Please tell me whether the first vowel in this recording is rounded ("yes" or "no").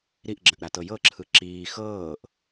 no